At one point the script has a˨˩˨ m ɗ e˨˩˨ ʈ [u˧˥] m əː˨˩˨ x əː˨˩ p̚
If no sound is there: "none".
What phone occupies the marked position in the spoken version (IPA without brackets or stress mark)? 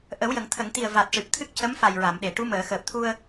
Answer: u˧˥